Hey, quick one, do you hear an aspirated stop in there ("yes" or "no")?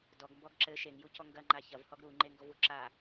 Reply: no